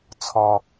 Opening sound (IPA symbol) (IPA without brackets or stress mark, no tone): t͡sʰ